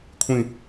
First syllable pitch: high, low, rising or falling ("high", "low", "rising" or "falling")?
falling